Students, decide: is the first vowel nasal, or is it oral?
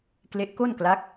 oral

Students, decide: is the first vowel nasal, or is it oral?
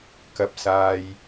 oral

